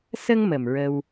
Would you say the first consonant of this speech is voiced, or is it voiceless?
voiceless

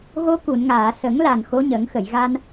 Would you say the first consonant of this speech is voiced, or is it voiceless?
voiced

